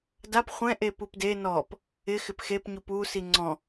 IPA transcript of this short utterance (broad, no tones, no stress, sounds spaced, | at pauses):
d a p χʷ ɛ̃ ʔ e p u p d e n ɔ p | ɪ x ɪ p x e p ɲ u p u s i ŋ͡ǀ ɔ̃